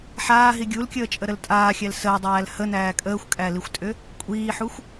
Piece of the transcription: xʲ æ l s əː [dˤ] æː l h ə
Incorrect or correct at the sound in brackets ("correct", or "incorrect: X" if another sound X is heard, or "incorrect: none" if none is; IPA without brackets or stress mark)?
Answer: correct